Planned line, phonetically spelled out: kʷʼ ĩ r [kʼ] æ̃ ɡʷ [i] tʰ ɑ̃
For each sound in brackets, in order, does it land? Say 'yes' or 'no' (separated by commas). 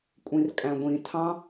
yes, no